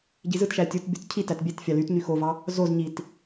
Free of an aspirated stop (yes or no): no